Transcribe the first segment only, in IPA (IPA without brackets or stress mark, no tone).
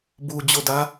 b